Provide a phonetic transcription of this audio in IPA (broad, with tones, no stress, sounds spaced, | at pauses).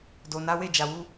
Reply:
d o˨ n a˨˦ w e˦˨ d͡ʒ a˨ w u˧